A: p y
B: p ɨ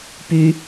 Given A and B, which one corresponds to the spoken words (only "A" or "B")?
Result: A